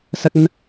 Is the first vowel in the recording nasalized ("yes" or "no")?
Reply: no